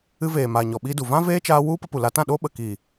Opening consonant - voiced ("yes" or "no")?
yes